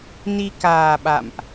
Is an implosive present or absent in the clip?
present